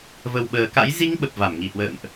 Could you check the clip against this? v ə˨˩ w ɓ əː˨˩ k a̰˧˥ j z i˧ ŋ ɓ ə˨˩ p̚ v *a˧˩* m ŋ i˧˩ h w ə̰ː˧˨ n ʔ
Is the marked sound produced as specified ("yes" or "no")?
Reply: yes